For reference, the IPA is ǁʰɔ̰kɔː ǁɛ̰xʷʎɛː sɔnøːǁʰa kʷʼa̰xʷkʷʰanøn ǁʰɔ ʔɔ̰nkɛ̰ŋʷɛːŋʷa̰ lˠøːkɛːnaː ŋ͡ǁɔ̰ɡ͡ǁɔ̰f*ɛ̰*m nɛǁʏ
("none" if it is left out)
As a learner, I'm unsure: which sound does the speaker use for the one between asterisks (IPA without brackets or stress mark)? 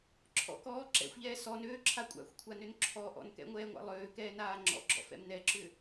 ɛ̰